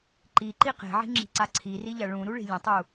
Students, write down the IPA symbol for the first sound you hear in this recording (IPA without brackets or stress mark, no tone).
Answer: ǃ